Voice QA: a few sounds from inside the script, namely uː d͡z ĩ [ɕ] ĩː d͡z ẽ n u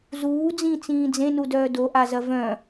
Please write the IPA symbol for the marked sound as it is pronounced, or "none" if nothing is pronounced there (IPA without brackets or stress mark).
t͡s